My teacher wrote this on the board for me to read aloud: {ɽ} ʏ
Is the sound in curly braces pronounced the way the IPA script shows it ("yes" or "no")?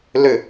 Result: no